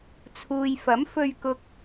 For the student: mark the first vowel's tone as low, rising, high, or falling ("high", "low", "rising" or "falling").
low